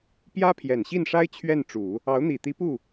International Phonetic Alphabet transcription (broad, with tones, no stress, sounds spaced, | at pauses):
p j ä˥ pʰ j ɛ˨˩ n ɕ i˥˩ n ʂ a˥ ɪ̯ t͡ɕʰ ɥ ɛ˥˩ n ʈ͡ʂ u˨˩˦ | ɑ˧˥ ʊ̯ n̪ i˨˩ t̪ i˧˥ p u˥˩